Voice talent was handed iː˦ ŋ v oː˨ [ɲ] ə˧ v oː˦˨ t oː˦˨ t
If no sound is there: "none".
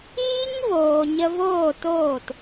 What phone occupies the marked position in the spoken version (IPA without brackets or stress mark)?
ɲ